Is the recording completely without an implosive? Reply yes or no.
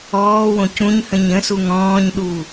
no